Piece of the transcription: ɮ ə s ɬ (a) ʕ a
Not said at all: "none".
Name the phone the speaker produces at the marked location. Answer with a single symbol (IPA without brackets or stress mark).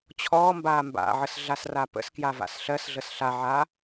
a